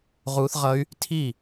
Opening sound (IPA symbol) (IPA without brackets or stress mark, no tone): ʁ